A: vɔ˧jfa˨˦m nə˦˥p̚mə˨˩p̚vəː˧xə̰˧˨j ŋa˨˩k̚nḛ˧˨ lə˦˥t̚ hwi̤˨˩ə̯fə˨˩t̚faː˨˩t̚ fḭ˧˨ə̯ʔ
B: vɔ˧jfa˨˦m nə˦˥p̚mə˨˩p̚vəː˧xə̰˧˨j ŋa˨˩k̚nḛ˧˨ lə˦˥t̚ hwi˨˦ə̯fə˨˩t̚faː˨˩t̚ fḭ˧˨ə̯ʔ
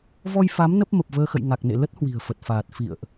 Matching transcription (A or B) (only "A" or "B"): A